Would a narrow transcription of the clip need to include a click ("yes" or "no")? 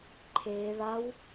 yes